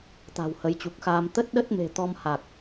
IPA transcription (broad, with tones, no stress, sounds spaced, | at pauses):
t̪ a̤˨˩ w h ə˨˦ j t͡ɕ u˨˩ k̚ x aː˧ m t̪ ə˦˥ t̚ ɗ ə˦˥ t̚ m e̤˨˩ t̪ ɔ˧ m h a˨˩ k̚